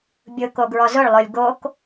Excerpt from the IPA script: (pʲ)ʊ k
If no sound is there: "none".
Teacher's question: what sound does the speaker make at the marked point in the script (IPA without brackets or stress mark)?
bʲ